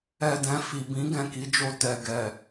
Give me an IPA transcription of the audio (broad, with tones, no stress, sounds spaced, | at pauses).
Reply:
ɛ˨ d ɛ̃˨ f i˨ b ĩ˨˦ ɡ ɛ̃˦˨ k i˨˦ d͡ʒ o˧ t ɛ˨ ɡ ɛ˨